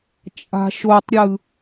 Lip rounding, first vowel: unrounded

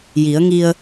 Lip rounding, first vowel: unrounded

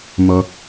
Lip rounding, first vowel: rounded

